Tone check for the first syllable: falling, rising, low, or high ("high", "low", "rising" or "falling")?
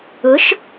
rising